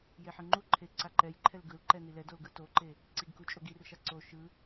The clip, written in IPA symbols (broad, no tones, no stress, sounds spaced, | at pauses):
j e ħ ɯ ŋ͡ǃ u ǃʰ e ǀ a ǃ ɛ j ǃʰ ɛ l ɡ ɯ l ǃ ɛ n i l ɛ d o l ɡ ɯ t o ǃ e | ǀ i ɡ k u t͡ʃʼ o ɡ i r ʃ a ǀ o ʃ ɯ